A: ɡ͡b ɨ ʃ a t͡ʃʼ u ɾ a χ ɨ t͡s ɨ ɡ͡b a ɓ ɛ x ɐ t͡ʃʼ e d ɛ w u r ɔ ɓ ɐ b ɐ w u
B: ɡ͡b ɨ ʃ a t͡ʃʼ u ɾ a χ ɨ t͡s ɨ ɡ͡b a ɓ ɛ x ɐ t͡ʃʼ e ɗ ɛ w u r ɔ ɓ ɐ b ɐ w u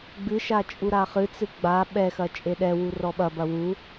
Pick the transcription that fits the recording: B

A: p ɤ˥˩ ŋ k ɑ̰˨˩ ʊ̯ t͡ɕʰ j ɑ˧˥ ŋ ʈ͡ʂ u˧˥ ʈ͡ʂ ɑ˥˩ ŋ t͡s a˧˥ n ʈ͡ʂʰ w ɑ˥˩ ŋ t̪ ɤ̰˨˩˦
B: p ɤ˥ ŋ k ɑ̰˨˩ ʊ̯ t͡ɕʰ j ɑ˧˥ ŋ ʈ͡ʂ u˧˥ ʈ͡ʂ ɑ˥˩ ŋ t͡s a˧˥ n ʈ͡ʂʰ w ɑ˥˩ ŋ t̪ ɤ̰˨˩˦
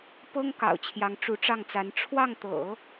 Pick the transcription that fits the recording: B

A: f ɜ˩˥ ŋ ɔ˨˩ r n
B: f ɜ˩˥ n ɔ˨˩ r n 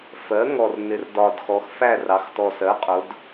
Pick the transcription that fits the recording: A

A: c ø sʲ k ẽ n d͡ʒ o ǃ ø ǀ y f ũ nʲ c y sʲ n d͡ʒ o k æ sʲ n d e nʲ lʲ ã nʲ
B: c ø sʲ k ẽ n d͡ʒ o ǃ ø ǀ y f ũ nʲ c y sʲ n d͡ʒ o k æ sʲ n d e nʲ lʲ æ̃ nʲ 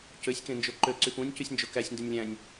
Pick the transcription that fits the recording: B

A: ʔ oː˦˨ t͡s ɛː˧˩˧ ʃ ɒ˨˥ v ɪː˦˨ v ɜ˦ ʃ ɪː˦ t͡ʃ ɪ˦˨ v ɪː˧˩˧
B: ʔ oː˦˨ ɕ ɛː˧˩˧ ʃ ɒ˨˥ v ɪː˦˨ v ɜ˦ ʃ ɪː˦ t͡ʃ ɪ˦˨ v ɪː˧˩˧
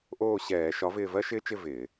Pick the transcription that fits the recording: B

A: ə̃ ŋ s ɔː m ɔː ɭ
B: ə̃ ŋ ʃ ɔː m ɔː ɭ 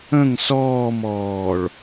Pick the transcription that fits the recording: A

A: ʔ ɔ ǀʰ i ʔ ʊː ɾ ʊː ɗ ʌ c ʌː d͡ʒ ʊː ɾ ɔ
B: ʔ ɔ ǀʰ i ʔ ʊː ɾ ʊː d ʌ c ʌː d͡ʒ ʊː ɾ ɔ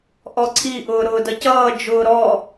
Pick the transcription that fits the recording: B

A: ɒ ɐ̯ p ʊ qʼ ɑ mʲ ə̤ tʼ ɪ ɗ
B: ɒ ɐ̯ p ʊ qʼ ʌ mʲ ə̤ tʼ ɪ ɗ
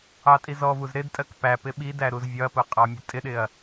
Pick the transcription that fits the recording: A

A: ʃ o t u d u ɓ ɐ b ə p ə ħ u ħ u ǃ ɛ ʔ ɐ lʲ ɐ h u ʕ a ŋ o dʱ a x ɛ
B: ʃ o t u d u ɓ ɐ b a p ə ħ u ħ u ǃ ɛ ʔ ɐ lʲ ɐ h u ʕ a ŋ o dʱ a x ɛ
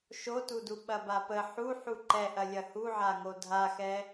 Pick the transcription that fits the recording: B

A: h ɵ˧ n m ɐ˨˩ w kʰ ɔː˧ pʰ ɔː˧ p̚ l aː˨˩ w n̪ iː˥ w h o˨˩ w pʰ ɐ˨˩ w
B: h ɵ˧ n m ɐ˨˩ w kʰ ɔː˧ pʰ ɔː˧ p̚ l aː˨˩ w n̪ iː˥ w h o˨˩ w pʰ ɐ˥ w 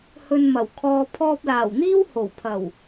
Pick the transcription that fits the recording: A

